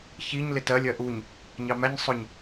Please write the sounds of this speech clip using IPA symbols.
ç i ɲ l ɪ t ɜ lʲ ɜ ʔ u ɲ | ɲ ɑ m æ ɲ sˤ ʊ ɲ

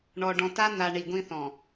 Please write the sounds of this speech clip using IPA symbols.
ɳ ɔ˨ ɖ ɔ̃˨ t a˦ n̪ a˨ ɳ i˨ ɡʷ ĩ˦ θ ɔ̃˨

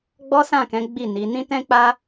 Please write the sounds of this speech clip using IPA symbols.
ɡ͡b ɔ˦ s ã˦˨ k ɛ̃˨˦ ɡ͡b i˦˨ n i˨˦ n ĩ˦ t ɛ̃˦ k͡p a˦

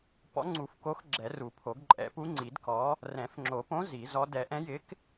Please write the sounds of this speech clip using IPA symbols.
p ɔ̰˨˥ ŋ͡ǀ u˨˩˦ f k o˨˥ x ɡ͡ǁ ɛ˨˩˦ r u˨˩˦ pʰ o˨˩˦ ɡ ǃʼ ɛ̰˨˩˦ p u˨˥ ŋ͡ǀ i˨˩˦ d k ɔ˨˥ | r ɛ̃˨˩˦ f ŋ͡ǁ o˨˩˦ p õ˨˥ z i˨˩˦ z ɔ˨˥ d ɛ˨˩˦ ʔ ɛ̃˨˥ j ɪ˨˥ k

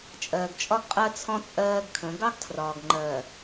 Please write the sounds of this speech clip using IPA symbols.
t͡ʃʼ ɜː˨ ɡ t͡ʃʼ ɒ˦ ɡ qʼ ɜ˦ t͡sʰ ɔ̃˦ t͡sʼ ɜː˦ ɡ kʰ ə̃˨˦ ɡ ɑ˦ ɡ tʰ r ɒː˨ ɡ ŋ͡ǃ ɜː˨

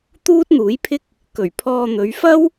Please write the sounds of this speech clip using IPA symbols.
t̪ uː˥ t̚ n̪ uː˨˥ j pʰ ɪ˥ k̚ | k ɵ˨˩ ɥ pʰ ɔː˧ n̪ ɵ˨˧ ɥ f ɐ˥ w

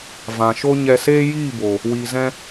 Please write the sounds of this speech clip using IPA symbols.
v ã˨ ʃ o˦ ɲ ɛ˧ s eː˦ j iː˦˨ b o˨ | w iː˨ z ɛ̃˧

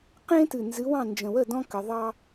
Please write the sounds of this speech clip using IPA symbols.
q ẽ˦ t ɨ˨˩ n z ɨ˨˥ w ɑ̃˥˩ n d͡ʒ ə̃˨˩ w ə˥˩ d ɔ̃˦ k ə˩˧ ðˤ ɑ˦

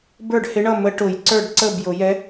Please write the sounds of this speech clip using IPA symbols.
b ə˞˥˩ ɖ h ɪ˧˥ ɳ ʌ˥˩ m ə˧˥ ʈ ʊ˨˩˦ j ǀ ə˞˥˩ ɖ ǀ ə˥˩ b j ʊ˨˩˦ j ɛ˧˥

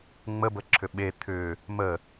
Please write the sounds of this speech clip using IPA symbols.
ŋ͡m ə b ə ǁʰ ʏ ɓ e t̪ʰ ʏ | m ə

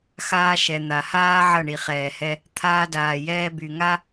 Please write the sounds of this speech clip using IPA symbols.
x aː˧ ʃ ɛ˨ n̪ a˨ h aː˦ ʕ ʌ˦˨ ɳ i˨ χ ɛː˨ h ɛ˧ | t̪ʰ aː˧ d aː˨ j ɛː˧ b y˨ ŋ a˦

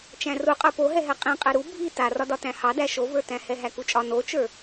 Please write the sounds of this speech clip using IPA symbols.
t͡ʃ æ̃ r u qʼ ə˞ p o ɦ ɛ ɦ ɛ qʼ ĩ qʼ ɛ ɾ u bʱ i t a r ɒ d ɒ t æ̃ h ɑ d æ ʃ o v ə˞ t æ̃ h ɛ ɦ æ k u t͡ʃʼ ɒ n o t͡ʃ ə˞

